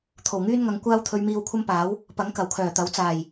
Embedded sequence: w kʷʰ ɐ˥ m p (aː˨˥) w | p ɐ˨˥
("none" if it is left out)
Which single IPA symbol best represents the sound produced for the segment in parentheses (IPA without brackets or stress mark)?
aː˨˥